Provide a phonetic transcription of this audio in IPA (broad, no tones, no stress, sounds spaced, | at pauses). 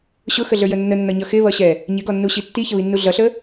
ɕ ʊ x ə ɮ ə˞ j ə nː ə nː ʌ ɲ ʌ x ɪ β ʌ ɕ ɛ | ɲ ɪ ɡ ɔ nː u ɕ i tː i ç ə β i nː u ɮ ʌ ɬ ə